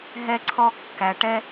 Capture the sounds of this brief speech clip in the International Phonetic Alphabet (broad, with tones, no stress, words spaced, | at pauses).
ɦɛ˧ǀʰɔ˧kːæ˨ʈɛ˦